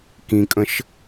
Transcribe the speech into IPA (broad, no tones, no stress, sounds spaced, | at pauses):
k ĩ kʼ ə̃ ʃ